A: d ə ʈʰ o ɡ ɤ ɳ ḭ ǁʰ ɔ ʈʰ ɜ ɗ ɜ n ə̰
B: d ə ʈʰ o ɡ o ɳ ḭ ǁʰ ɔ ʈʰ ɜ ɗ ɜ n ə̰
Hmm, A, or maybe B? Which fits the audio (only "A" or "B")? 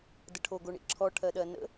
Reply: B